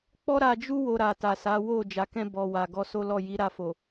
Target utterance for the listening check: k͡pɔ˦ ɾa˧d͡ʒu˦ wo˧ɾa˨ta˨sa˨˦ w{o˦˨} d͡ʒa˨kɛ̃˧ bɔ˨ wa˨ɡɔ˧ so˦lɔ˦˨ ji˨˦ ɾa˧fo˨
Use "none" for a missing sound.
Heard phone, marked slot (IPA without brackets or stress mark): o˦˨